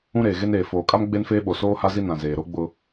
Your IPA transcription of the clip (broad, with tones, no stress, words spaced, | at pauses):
ũ˦ɾeː˨ɣe˦neː˨ foː˨kʼa˦m ɡ͡be˦nfeː˦ɓo˨ soː˦ha˦zi˦ nã˨zeː˨ɾo˦ɡ͡bʊ˦